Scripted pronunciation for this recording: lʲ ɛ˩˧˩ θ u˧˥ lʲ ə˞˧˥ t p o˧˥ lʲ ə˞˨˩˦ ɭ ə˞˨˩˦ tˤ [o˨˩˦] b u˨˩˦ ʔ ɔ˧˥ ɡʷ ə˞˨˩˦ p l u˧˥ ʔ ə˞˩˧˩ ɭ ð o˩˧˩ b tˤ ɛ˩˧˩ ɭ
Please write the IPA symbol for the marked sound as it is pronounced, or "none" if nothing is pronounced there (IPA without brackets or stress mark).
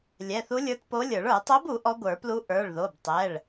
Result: o˧˥